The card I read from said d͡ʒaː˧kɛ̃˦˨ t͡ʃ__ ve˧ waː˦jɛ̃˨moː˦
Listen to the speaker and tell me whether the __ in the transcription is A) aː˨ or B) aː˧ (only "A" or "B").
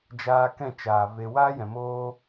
A